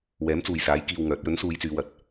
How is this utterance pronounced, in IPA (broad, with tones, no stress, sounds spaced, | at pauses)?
w ɛː˨˥ m t͡s uː˨ j s aː˨˥ j k iː˧ w ŋ œː˨˥ t̚ j ɵ˨˥ n s uː˨˧ j t͡s yː˨˧ w ɐ˨˥ t̚